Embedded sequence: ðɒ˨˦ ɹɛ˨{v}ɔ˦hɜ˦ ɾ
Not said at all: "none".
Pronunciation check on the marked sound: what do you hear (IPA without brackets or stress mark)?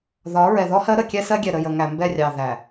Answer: ð